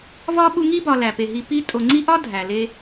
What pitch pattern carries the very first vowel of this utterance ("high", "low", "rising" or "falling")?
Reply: high